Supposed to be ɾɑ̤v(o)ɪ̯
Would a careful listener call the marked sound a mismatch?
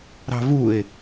yes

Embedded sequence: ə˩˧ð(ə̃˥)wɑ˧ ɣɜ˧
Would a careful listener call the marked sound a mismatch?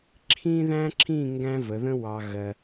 no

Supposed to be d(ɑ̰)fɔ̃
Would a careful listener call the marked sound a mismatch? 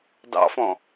no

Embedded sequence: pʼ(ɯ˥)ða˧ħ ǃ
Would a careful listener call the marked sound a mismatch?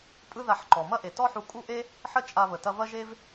no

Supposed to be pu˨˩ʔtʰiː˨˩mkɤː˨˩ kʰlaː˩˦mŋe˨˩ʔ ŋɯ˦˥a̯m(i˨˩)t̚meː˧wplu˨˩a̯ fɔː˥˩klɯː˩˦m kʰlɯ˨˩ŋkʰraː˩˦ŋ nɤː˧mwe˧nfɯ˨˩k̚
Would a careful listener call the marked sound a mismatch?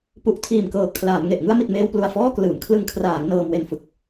no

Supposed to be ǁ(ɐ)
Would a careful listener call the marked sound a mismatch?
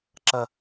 no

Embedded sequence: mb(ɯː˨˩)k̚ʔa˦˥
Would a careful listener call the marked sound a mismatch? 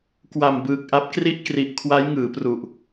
no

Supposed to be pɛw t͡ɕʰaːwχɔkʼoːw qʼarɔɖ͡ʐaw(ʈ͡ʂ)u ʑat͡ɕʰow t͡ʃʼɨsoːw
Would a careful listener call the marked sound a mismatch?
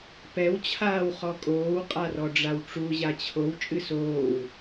no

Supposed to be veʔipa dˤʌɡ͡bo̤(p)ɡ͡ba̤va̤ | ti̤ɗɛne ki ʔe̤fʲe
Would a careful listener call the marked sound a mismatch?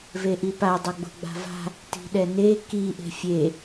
yes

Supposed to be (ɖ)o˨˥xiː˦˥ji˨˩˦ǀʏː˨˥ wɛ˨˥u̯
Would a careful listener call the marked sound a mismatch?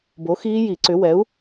yes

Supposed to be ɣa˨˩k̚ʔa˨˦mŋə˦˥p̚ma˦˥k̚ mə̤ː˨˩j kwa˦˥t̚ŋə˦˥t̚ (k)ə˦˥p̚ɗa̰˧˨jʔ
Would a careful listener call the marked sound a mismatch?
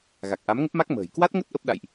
yes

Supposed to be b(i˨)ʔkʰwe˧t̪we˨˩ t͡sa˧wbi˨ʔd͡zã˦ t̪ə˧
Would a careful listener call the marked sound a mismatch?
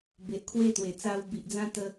yes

